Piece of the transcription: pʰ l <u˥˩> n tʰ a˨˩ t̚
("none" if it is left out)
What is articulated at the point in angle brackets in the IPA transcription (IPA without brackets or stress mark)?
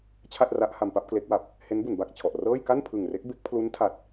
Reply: u˦˥